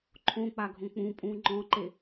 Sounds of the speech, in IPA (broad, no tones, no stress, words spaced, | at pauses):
ǃʰõk͡paɡʱõ k͡pũpʼũ ŋ͡ǃɔ̃ǃe